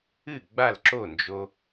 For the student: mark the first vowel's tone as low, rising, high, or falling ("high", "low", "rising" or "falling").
falling